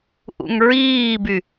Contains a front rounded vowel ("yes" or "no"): yes